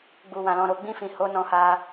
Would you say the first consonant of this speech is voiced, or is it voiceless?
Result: voiced